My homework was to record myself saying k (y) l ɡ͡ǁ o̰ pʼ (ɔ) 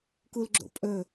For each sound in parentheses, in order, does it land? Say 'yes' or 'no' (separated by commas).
no, no